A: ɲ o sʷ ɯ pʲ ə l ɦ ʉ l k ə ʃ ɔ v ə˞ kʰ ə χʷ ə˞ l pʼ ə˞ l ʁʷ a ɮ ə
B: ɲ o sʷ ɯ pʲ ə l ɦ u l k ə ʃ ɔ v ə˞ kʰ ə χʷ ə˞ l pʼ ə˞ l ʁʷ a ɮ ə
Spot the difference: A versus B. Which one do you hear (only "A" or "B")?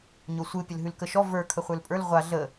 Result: A